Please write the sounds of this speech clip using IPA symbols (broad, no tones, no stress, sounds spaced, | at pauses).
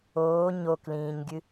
oː ɲ o k l ĩː ɲ ɡʲ ɨ